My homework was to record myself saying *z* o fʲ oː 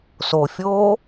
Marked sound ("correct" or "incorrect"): incorrect